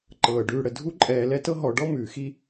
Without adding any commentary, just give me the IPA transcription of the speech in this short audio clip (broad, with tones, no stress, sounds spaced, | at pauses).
ǃ ɤː˩ ɖ ʉː˨ ɽ ə˩ dʱ u˦ ǃʼ ɛː˨ l ɛ˦ t ɤ˦ ɦ ɔ˨ ɖ ɔ˥ m ʉː˩ x i˥